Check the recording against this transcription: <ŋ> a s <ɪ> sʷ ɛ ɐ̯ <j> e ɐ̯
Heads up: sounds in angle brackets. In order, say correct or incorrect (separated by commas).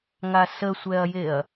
correct, incorrect, correct